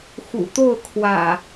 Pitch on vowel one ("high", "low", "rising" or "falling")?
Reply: low